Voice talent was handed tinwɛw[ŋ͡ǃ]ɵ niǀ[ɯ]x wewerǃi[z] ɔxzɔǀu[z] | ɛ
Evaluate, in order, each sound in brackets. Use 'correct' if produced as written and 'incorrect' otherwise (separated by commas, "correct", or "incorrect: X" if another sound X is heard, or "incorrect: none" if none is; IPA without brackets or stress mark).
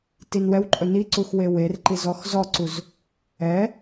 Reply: incorrect: ǃʼ, incorrect: u, correct, correct